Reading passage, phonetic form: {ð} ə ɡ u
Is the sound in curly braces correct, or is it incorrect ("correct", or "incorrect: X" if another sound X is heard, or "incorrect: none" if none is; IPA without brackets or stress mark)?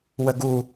incorrect: w